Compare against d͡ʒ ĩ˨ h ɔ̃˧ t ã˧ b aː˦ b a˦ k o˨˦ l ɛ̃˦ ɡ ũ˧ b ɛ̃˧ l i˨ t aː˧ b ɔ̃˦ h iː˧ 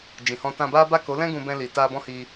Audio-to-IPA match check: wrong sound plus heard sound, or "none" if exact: none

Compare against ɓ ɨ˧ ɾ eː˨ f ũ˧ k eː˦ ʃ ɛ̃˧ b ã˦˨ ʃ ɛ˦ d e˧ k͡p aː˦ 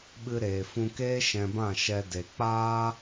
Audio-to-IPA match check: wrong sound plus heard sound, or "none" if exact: none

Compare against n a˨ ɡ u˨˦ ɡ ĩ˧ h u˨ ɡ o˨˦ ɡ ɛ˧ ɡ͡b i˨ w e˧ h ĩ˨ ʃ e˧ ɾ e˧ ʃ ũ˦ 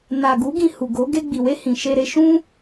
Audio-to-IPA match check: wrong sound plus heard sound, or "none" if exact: ɛ˧ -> e˧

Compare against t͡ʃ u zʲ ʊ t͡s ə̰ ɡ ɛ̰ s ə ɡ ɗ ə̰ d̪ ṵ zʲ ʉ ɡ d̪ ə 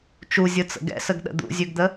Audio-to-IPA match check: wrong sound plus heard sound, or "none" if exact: ʊ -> ɯ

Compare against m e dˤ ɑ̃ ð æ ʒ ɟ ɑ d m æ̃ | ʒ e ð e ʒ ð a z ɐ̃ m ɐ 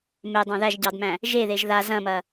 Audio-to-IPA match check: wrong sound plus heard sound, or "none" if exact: none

